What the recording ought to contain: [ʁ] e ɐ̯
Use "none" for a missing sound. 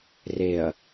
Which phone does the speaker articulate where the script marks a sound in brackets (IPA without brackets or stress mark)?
r